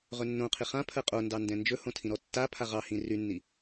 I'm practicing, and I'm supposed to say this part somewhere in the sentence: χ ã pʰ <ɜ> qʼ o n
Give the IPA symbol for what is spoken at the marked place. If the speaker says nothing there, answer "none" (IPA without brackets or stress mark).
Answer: ɜ